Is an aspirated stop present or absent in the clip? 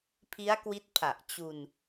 present